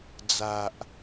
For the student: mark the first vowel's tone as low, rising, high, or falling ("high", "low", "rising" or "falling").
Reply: low